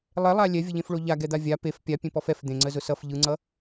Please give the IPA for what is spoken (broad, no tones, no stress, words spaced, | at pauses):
lˠɛlˠa lʲɛvʲəʎẽfɭo ʎaɡɛd̪a vʲa pef pʲapʲẽpɔf ɛf d̪ẽŋ͡ǀəzʊ sʌf ʎɯŋ͡ǀʌ